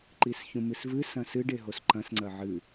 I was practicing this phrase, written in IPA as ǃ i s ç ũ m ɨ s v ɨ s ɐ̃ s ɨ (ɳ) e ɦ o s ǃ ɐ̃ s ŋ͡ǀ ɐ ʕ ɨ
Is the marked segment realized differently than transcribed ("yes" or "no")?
yes